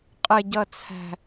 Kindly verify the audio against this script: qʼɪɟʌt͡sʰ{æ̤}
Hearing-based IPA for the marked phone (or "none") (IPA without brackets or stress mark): æ̤